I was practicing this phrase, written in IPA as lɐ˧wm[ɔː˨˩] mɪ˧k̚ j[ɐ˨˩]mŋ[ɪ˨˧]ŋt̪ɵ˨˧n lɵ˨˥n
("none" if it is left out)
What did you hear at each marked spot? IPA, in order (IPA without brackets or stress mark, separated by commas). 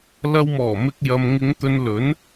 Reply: ɔː˨˩, ɐ˨, ɪ˨˧